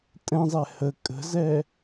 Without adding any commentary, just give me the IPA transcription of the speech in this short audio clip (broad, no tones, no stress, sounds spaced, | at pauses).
tʼ ɛ̃ zˤ ɛ h ə kʼ ə̤ z ɛ